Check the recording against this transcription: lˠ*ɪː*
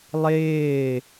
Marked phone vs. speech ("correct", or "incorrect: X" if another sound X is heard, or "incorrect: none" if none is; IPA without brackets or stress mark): correct